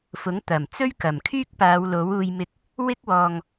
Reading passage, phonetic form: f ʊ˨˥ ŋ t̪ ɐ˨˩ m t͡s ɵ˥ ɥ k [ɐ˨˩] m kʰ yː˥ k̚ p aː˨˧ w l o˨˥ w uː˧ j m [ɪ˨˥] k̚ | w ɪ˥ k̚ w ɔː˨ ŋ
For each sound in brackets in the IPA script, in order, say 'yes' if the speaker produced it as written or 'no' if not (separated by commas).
yes, no